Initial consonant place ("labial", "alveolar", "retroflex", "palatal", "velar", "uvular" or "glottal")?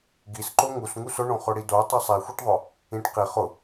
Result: velar